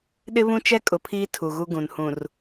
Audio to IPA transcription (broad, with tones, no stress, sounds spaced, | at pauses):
ɗ ɪ˦ β ũ˦ t͡ʃ ɛ˦ kʼ ʊ˨ pʰ iː˦ tʰ u˨ ɣ u˦ ɡ ũ˨ n h ũ˨ r